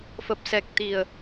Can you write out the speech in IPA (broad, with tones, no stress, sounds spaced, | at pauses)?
f ə˨˩ p̚ s ɛ˨˩ k̚ t̪ i˨˩ ə̯